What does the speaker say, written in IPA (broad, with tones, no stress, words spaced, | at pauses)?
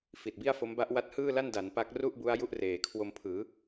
fi˨˩t̚bi˥˩a̯fo˦˥m ba˦˥ʔwa˦˥t̚hɯː˥˩la˥˩n da˩˦n pa˦˥k̚ru˥˩ʔbu˦˥a̯ ju˦˥ʔreː˩˦kʰwo˧m pʰɯː˩˦